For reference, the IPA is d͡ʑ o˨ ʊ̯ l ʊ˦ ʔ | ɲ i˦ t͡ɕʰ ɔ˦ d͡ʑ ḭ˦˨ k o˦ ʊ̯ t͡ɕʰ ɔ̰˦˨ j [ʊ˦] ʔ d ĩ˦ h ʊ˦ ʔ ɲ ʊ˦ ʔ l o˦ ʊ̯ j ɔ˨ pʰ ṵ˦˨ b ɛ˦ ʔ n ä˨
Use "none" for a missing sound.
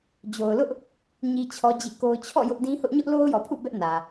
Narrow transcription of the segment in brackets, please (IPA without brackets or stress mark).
ʊ˦